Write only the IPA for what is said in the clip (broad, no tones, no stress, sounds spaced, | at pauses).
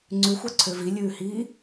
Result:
ŋ͡ǀ ʉ xʷ ɑ ǀʰ ø v i lʲ ʉː h iː